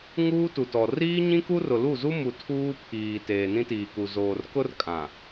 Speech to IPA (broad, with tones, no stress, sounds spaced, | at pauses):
ŋ uː˦ t u˨ t ɔ˨ r iː˦ ɲ ĩ˦ k u˦ r ʊ˨ l u˦˨ z u˦ m u˨ tʰ uː˦ pʰ iː˨ t eː˨ n ĩ˦ t iː˨ k u˨ z oː˨ r k ʊ˦ r kʼ ã˨